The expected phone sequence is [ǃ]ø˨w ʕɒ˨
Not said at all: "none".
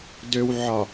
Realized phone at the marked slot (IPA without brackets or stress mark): d